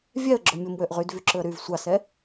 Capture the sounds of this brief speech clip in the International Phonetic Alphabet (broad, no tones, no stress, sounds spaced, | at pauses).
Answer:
vʲ ɛ ə̯ ɡ͡ǁ o mʲ o m w ø ʔ ʁ y d v y ǁ ɵ ə̯ ɾ y v sʷ ɑ s ɛ